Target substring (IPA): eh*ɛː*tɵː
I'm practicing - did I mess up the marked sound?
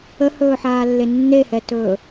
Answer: yes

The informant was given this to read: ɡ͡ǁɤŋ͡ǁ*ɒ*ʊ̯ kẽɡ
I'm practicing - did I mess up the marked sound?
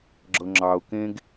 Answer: yes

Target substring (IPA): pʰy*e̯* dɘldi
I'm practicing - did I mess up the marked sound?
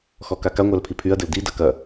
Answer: yes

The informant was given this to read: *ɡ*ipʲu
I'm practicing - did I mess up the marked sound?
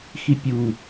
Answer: yes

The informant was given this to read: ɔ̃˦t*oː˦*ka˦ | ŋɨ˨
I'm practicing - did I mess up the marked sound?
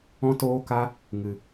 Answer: no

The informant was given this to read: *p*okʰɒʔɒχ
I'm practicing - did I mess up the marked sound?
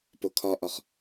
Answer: no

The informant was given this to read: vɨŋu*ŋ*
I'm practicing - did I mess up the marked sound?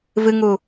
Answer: yes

